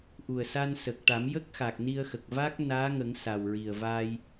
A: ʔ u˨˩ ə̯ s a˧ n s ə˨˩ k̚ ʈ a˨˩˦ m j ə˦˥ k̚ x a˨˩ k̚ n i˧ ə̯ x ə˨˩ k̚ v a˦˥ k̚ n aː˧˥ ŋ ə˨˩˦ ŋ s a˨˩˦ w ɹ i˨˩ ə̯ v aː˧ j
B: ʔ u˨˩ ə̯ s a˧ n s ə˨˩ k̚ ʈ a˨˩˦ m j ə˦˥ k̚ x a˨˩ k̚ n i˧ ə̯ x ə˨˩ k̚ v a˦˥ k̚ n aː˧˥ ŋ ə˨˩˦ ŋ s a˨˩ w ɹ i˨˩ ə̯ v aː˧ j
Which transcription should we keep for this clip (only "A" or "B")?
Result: B